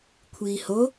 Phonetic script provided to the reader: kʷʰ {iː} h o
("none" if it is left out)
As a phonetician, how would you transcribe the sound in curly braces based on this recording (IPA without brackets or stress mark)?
iː